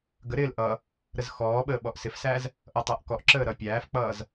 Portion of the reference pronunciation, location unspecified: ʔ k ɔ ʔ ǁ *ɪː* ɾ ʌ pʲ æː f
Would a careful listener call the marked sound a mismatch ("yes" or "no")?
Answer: yes